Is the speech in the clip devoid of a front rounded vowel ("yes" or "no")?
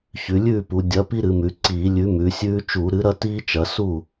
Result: yes